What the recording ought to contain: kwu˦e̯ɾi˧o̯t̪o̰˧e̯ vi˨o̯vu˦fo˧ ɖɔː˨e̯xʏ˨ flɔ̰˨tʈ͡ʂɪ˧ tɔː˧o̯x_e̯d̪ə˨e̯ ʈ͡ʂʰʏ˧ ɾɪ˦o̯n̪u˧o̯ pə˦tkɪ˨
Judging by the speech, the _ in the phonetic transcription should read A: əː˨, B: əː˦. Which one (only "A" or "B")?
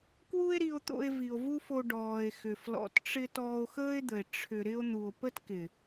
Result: B